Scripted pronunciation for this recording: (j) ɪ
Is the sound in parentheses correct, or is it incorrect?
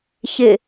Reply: incorrect